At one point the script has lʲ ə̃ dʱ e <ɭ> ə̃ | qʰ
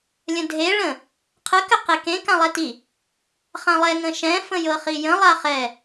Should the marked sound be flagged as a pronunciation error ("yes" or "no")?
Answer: no